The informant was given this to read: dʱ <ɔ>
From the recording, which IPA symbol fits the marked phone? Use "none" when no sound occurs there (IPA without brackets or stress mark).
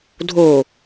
o